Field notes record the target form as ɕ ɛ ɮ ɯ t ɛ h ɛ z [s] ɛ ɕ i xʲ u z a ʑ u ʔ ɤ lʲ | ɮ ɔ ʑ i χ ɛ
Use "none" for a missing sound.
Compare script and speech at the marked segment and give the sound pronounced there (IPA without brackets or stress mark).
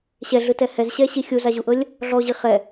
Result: ɕ